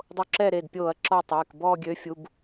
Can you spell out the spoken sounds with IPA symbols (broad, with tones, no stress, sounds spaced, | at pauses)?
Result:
dˤ o˦ ǁ ɛ˦˨ ɾ e˩˧˩ d pʲ oː˧˩˧ ɐ̯ ǁ ɔ˦˨ tˤ eː˩˧˩ k b ɔː˦˨ ɡʲ ø˨˥ fʲ u˩˧˩ b